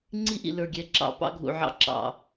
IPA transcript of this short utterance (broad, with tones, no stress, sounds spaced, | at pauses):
ŋ͡ǀ i˦ ʔ ḭ˨ l ə˞˨ ɡʲ ɛ˨ ǁ ɑ̰˨ p ɑ̰˦ ɡʱ ṵ˨ ʕ ɑ̰˦ ǁ ɑ̰˨